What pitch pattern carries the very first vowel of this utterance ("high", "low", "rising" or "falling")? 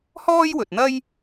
high